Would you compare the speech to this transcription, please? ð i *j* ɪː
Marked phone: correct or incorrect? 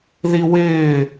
incorrect